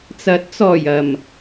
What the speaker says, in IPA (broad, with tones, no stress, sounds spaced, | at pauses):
t͡s ɐ˨˥ t̚ t͡s ɔː˨˩ j ɐ˨˩ m